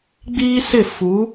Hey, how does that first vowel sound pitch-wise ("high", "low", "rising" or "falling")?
high